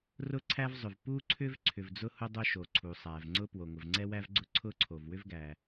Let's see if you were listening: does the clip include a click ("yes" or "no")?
yes